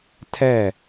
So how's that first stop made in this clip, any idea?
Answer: aspirated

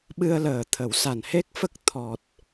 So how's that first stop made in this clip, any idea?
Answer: implosive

